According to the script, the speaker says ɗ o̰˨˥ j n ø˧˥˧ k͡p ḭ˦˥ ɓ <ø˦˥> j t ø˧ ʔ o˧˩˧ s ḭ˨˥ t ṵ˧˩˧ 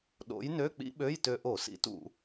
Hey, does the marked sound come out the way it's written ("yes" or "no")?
no